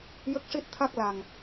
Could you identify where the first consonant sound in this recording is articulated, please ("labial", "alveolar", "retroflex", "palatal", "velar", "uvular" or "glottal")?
palatal